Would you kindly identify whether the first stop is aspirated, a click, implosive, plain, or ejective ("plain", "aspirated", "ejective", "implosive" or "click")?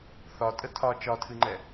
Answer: ejective